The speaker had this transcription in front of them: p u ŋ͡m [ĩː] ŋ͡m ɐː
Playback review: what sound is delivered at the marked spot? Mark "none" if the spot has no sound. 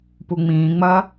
ĩː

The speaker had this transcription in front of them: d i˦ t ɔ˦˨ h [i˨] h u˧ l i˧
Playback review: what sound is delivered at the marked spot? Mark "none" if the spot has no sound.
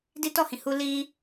ĩ˨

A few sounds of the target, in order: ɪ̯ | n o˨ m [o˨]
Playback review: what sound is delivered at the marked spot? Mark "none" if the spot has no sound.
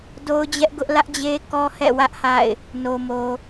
o˨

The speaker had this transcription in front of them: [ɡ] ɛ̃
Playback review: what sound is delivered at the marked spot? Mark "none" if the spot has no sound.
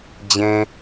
d͡ʑ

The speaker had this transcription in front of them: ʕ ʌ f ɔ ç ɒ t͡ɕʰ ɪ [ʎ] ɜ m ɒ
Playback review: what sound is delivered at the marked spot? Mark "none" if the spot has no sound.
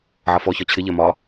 ʎ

